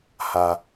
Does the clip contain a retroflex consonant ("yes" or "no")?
no